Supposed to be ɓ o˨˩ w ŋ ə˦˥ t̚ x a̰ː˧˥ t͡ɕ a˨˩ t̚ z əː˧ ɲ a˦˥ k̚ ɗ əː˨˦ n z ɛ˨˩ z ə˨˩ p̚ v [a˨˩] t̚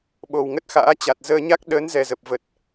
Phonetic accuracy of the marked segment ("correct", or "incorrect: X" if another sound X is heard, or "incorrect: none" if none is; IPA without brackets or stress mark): incorrect: ə˨˩